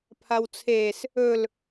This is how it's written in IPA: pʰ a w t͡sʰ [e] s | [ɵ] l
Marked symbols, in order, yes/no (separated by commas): yes, yes